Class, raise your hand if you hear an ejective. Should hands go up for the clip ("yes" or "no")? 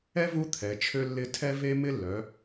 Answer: no